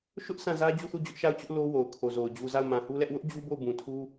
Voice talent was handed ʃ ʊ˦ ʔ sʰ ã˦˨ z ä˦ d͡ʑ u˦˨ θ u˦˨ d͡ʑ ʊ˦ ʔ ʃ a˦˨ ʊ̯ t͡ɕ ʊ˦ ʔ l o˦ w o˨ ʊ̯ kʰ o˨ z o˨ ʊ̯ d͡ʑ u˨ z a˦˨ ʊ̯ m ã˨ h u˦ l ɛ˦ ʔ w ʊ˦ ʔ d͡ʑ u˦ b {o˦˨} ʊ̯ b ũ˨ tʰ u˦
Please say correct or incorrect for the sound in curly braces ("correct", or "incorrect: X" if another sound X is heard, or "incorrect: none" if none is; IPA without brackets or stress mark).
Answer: correct